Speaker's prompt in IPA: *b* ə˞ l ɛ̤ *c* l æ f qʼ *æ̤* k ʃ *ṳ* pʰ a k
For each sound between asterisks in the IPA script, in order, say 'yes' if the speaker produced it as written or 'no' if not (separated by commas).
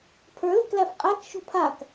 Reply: no, no, no, yes